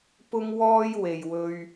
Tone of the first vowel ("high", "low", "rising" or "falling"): high